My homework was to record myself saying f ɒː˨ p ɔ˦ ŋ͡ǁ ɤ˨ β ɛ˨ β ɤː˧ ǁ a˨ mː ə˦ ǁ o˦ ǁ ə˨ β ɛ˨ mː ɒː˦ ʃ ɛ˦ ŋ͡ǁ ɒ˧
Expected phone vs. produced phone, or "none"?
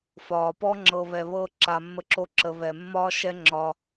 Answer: none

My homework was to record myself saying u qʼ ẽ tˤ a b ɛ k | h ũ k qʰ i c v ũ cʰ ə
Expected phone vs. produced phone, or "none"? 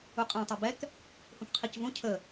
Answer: none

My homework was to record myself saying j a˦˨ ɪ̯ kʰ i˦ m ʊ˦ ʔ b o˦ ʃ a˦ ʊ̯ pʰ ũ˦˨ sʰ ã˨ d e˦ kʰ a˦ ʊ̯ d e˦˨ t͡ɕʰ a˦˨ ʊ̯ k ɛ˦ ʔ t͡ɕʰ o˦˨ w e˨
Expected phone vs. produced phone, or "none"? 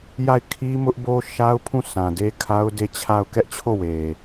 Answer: none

